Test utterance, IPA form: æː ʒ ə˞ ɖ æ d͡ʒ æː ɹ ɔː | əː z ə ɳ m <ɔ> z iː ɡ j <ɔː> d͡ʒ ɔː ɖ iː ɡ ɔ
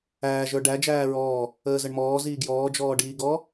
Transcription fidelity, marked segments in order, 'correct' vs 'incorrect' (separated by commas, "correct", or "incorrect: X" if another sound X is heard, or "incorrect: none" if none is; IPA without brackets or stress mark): incorrect: ɔː, correct